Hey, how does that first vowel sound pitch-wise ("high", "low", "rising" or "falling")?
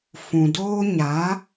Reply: low